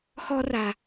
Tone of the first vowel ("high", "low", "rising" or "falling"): high